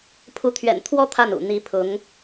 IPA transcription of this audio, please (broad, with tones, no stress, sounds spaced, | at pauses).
pʰ u˧˥ t̪ʰ ɥ ɛ̰˨˩ n t̪ʰ w ɔ˥ t̪ʰ a˥˩ n ṵ˨˩ n̪ i˧˥ pʰ ʊ˧˥ ŋ